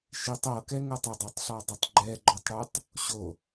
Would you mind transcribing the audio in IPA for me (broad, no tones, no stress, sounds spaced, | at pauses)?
ʃ i tˤ ɤ k ɛ ŋ ɤ tˤ ə dˤ ɤ tˤ ɬ ɔ dˤ ɛ tˤ ɡ͡ǃ ɛ ɡ͡ǃ ɔ tˤ ɽ ʉ tˤ | ɕ o